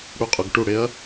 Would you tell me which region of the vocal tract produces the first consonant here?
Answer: retroflex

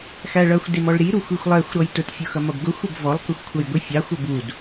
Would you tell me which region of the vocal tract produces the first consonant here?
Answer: velum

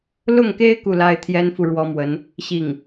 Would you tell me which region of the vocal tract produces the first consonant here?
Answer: tongue tip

